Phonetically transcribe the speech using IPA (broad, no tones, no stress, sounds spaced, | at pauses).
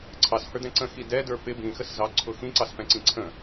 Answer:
ǀʰ ɑ s h ə˞ d ɛ̃ ǀ ə̃ x i d ɛ d ə˞ p ɪ b ĩ x ə s z ɑ ǀʰ ʊ x ĩ ǀ ɑ s p ɛ̃ ǀ ĩ ǀʰ ə̃